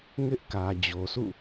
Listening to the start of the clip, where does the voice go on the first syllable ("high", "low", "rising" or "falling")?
high